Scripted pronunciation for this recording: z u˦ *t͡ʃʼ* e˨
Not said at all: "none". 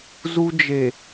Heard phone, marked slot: d͡ʒ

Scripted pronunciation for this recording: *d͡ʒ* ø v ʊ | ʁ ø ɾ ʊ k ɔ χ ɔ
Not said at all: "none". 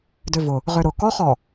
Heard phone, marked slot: d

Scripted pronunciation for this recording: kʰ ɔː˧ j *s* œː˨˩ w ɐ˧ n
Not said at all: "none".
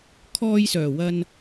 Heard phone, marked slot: s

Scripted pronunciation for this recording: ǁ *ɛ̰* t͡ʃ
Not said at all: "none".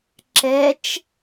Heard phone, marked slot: ɛ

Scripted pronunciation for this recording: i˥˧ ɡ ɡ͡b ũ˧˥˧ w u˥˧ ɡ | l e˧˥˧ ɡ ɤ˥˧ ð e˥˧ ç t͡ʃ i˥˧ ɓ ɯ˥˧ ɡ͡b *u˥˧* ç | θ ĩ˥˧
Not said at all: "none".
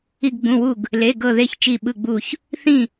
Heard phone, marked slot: u˥˧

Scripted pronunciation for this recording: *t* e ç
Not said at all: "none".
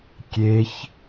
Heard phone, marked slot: kʲ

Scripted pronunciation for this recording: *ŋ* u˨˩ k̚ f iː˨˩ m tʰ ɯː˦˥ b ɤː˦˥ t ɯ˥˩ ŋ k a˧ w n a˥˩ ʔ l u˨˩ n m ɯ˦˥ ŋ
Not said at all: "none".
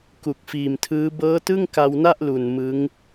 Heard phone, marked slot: k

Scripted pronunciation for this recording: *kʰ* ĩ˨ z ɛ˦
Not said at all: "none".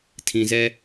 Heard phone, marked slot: tʰ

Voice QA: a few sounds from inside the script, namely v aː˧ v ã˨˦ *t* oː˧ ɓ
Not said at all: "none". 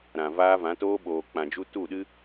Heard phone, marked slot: t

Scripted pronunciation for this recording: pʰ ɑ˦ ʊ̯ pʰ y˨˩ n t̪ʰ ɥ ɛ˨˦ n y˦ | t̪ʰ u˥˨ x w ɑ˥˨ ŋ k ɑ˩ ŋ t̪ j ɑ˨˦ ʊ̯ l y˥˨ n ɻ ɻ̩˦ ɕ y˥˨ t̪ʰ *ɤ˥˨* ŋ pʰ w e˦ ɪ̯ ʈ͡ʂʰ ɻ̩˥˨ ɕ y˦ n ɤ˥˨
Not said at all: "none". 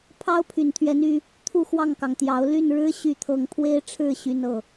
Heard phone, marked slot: ɤ˥˨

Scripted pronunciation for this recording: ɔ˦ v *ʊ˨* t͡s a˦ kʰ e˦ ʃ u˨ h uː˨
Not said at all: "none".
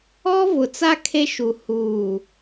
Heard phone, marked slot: ʊ˨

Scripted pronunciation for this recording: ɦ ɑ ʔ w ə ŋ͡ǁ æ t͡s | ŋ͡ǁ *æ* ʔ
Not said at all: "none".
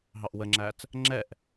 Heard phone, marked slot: ɛ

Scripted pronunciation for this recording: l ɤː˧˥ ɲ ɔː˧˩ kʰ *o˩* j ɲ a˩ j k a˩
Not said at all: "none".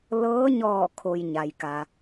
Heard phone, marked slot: o˩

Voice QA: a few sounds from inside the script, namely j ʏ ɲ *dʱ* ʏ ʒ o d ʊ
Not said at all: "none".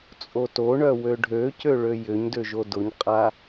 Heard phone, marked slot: d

